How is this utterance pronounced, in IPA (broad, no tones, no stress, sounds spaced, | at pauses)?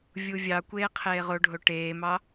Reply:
vʲ u vʲ ɑ kʷ eː qʰ eː ʁ o ɖʱ o ʈ eː m ɑ